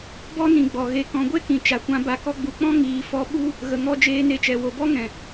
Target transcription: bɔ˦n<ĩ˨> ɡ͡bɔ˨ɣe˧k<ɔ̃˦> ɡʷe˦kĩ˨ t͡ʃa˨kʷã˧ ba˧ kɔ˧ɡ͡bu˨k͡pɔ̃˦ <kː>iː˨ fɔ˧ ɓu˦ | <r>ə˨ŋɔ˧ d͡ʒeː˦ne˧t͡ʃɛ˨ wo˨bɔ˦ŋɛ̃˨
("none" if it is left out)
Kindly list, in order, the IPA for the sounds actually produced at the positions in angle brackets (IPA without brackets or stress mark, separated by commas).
ĩ˨, ɔ̃˧, ŋ, ɣ